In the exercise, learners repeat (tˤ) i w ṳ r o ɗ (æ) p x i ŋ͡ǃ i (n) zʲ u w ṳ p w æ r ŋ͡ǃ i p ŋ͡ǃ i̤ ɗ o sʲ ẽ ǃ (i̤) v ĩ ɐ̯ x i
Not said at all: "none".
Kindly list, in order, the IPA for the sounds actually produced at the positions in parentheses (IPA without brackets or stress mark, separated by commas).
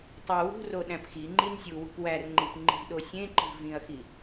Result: tˤ, æ̃, n, i̤